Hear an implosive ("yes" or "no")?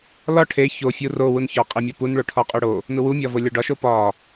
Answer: no